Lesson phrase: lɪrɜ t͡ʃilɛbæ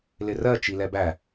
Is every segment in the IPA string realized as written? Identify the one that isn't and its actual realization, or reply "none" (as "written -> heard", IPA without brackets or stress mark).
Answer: none